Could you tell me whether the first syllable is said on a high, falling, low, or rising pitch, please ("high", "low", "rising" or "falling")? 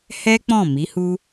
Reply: high